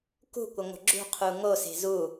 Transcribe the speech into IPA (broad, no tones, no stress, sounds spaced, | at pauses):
k ṳ kʷ ə ŋʷ ə̤ ɡ͡ǁ ṳ qʰ u ŋ o s e̤ z u